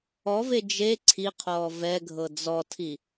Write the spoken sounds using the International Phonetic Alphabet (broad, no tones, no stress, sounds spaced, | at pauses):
ɔ v e d͡ʒ e ǀʰ i qʰ ɔː v ɛ ɡʱ ɤ d͡z ɔ tʰ i